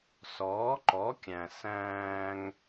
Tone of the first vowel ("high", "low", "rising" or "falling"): rising